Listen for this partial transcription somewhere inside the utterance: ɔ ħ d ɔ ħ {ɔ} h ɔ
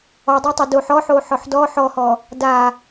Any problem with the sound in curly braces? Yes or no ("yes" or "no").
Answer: no